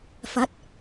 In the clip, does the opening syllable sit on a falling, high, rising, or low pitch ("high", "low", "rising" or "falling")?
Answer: rising